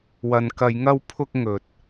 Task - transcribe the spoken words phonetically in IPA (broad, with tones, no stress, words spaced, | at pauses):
wɐ˨nkɐ˨˧jŋɐ˧wpʰʊ˧k̚ ŋɵ˨t̚